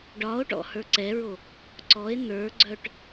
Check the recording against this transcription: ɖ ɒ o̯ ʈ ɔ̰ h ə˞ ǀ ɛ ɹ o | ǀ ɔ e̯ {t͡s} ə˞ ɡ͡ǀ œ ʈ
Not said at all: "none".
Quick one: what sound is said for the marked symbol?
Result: n̪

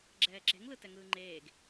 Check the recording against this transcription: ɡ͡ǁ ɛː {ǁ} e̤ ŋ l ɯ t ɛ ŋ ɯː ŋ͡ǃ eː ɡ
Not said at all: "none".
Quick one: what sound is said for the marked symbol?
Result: ǁ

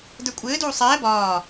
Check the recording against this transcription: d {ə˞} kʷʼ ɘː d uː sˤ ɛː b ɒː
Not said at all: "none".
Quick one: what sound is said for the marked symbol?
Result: ə˞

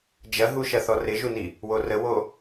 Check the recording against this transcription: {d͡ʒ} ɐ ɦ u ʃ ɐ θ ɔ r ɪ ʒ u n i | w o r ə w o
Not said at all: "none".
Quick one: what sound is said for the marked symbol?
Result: d͡ʒ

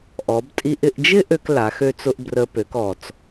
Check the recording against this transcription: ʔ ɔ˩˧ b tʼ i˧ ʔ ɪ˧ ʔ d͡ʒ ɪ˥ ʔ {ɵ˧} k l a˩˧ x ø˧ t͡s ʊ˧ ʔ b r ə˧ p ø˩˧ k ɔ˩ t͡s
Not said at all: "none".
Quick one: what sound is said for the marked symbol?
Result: ø˧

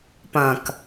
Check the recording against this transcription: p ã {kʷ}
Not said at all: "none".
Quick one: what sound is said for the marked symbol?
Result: k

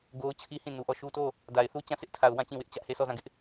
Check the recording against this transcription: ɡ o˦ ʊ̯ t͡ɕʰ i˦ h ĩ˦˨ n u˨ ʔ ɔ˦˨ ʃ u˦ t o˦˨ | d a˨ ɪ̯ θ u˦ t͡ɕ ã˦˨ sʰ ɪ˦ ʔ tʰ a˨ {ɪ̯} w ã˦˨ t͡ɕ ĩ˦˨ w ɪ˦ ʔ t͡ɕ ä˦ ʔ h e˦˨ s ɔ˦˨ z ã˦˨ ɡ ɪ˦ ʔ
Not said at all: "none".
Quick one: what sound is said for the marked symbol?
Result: ʊ̯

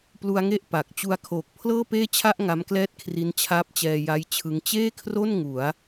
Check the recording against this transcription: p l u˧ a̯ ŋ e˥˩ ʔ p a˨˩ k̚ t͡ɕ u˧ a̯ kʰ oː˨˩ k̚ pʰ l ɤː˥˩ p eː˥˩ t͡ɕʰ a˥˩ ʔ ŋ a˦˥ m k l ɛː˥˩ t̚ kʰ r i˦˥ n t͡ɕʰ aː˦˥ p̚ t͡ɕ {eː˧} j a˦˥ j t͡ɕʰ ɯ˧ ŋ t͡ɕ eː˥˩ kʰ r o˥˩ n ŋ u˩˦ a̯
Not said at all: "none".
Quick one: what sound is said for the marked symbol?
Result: ɛː˧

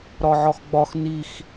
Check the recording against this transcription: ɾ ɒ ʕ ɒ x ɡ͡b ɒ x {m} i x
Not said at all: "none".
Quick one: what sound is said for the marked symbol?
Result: n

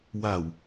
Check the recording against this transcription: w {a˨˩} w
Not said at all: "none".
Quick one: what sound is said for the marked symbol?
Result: a˨˩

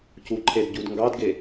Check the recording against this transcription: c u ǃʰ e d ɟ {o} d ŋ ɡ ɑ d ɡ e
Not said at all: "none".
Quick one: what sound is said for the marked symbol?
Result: u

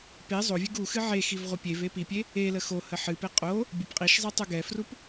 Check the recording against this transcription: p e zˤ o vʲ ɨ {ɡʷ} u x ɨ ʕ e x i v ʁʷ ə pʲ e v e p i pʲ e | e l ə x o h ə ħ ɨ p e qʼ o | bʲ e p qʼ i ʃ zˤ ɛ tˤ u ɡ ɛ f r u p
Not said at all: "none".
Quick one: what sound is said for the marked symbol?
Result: ɡ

